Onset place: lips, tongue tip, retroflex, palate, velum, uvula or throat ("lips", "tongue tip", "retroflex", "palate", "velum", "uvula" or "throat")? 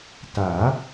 tongue tip